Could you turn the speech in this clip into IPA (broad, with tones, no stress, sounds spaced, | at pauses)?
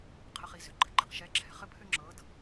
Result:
qʰ ə˧ χ i˩˧ z ʏ˩˧ ɡ͡ǃ ɘ˧ ɡ͡ǃ i̤˧ q ʃ ɛ˧˥ ǁʰ ɛ̤˩ χ ɘ˥ pʰ ʏ˥ ŋ͡ǁ ɤ˧˥ d